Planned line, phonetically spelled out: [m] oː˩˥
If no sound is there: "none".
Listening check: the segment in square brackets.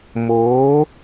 m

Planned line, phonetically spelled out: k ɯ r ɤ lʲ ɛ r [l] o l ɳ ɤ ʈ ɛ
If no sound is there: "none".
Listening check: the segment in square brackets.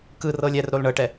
ɾ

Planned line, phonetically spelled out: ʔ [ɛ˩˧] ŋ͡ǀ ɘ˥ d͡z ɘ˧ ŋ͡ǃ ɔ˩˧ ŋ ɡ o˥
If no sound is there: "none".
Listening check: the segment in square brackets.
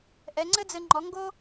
ɛ˩˧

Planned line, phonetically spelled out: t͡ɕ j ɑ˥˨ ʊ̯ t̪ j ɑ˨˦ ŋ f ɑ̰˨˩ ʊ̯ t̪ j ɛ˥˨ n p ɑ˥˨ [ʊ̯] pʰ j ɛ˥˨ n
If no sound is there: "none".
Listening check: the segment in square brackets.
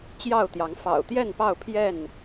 ʊ̯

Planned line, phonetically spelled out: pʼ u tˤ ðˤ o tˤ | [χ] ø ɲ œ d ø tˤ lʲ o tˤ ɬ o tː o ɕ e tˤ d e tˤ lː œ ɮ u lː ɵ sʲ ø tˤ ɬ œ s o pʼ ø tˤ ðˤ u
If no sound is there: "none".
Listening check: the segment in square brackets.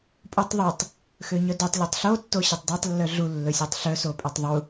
x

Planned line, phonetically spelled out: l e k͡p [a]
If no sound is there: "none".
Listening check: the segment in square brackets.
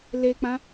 ã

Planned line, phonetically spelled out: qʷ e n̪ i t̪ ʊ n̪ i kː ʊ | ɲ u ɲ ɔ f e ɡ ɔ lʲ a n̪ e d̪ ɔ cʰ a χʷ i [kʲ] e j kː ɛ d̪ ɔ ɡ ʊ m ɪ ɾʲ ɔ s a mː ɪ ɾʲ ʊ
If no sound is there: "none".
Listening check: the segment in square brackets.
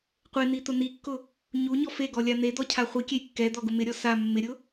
kʲ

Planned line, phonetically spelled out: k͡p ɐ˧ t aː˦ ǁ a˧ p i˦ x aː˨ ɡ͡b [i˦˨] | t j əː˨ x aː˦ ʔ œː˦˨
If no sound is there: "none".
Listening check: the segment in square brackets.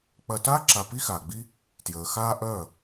i˦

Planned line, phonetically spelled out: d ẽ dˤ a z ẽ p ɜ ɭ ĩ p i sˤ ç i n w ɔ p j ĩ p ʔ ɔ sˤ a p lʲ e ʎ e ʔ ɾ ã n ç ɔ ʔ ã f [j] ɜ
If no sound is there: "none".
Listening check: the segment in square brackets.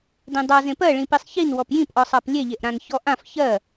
ç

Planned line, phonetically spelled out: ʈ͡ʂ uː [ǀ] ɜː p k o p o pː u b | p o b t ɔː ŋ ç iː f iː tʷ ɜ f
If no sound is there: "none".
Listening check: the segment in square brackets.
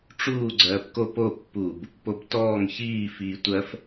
ɡ͡ǀ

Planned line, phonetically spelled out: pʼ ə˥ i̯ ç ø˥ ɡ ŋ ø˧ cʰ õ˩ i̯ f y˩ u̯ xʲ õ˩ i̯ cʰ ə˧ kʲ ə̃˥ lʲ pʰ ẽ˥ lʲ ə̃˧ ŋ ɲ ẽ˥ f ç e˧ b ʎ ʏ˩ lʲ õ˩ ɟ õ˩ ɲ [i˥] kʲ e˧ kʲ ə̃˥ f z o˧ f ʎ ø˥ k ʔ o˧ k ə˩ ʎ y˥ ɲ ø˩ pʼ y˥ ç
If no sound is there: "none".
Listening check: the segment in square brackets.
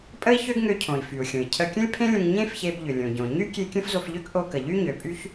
y˥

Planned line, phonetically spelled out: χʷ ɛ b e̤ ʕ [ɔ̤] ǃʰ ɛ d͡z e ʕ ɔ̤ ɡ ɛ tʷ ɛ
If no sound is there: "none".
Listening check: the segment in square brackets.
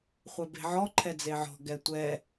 ɔ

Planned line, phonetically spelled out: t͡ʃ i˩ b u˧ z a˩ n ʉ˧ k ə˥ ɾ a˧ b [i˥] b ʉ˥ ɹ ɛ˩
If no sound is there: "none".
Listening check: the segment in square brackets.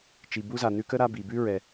i˩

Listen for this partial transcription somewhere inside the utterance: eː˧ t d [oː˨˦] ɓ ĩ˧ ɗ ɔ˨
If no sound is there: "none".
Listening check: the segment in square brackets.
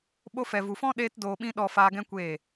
oː˨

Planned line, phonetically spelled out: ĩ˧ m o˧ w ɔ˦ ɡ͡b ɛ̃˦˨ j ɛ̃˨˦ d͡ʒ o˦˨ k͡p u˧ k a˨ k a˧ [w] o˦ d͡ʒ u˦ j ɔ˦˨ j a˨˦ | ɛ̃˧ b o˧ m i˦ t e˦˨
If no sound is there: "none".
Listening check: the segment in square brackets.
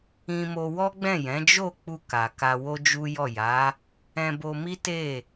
w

